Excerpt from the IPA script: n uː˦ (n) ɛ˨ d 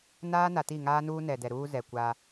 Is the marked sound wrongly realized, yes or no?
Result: no